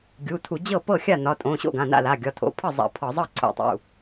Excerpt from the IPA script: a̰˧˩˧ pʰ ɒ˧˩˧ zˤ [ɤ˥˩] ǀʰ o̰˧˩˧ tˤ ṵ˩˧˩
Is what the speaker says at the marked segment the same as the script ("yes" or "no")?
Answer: yes